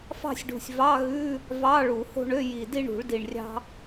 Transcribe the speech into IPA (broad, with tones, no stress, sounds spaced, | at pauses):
f ɑ̤˥˧ sʲ ɖ ṳ˨˩ sʲ v ɑ˧˥˧ ɣ ʉ˧˥˧ | v ɑ˧˥˧ ɭ u˨˩˦ h o̤˥˧ ɳ ø˧˥˧ j i˨˩ d i˥˧ ɳ ṳ˨˩˦ ɭ d i˨˩ ɳ rʲ ɑ̤˥